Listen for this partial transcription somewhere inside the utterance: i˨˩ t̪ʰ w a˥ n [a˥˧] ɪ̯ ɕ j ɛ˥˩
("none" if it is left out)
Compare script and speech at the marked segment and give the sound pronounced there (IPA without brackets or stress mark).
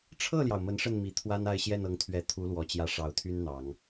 a˥˧